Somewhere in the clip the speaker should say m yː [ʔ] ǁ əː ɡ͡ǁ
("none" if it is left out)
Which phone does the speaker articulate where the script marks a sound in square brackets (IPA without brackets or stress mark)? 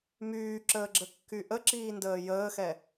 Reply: none